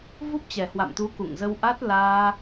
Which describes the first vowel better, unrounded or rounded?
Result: rounded